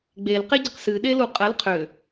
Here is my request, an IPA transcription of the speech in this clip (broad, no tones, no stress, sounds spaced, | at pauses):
ɡ͡b e l q e ɟ ə q s ɨ ɗ e l u qʼ ə l qʰ ʏ